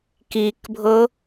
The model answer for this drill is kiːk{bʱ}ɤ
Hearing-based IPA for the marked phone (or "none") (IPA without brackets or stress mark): bʱ